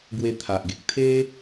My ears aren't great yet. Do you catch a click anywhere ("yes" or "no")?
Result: no